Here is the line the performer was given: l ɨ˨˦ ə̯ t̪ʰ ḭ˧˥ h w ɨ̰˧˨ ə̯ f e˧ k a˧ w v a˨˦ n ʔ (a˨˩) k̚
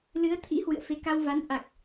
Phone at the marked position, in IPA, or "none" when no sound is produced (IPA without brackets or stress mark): a˨˩